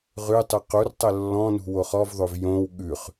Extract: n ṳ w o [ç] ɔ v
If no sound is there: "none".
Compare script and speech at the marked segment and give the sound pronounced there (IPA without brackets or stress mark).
χ